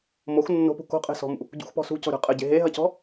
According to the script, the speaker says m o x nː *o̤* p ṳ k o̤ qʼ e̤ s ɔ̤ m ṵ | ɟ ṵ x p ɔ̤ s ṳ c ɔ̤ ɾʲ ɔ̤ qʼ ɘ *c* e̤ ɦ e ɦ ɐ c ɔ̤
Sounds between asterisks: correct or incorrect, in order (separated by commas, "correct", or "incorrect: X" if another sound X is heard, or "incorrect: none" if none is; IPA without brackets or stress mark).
correct, incorrect: ɟ